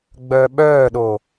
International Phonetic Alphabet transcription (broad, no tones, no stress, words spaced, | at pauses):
ɡ͡bœːɓœːɗo